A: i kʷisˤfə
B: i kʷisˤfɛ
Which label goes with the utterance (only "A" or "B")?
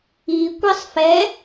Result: B